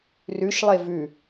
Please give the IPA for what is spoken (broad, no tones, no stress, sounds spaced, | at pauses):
r ʉ ʃ lˠ e v ʉ